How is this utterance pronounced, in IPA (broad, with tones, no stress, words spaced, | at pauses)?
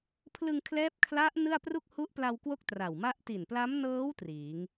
pʰlɯ˧ŋkʰlɛː˦˥p̚ kʰla˦˥ʔ nɯ˥˩a̯pru˥˩k̚ hu˦˥ʔpla˧wkwo˦˥k̚ tra˨˩wma˥˩ʔ ti˨˩npla˦˥mnɤː˦˥w triː˩˦ŋ